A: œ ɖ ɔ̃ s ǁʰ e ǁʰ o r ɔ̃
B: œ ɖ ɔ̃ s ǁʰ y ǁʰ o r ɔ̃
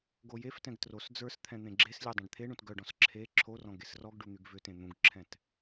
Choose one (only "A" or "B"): A